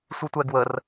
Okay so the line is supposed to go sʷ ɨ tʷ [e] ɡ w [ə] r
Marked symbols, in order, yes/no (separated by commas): no, yes